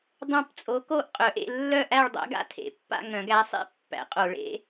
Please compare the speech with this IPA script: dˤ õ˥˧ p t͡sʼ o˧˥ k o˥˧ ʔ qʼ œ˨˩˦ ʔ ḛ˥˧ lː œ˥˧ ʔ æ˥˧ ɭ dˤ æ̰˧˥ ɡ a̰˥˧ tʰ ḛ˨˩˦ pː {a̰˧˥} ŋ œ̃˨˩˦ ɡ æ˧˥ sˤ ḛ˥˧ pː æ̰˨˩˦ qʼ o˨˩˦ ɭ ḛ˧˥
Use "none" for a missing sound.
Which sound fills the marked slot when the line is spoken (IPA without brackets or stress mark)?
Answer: a̰˥˧